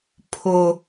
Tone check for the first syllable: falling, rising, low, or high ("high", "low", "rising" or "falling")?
high